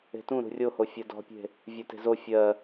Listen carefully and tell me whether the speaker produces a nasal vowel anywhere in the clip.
yes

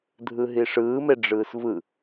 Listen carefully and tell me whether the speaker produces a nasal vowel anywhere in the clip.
no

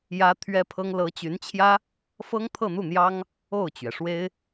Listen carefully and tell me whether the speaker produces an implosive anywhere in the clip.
no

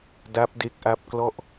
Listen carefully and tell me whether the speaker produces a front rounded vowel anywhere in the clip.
no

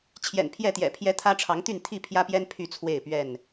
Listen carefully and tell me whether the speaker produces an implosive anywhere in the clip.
no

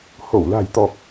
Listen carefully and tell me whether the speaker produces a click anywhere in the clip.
no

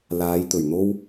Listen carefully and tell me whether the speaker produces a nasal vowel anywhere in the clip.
no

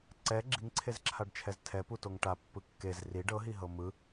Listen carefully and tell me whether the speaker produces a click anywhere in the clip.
yes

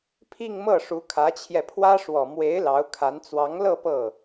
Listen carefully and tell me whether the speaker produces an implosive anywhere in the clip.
no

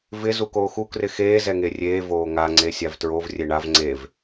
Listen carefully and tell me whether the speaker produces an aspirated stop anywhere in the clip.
no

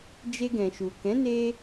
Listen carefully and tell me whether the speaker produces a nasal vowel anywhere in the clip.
yes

